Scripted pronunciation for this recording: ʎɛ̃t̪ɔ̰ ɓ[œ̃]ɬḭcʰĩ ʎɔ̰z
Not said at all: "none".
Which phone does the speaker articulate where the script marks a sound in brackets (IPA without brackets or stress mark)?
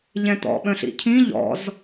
œ̃